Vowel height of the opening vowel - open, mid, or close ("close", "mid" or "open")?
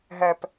mid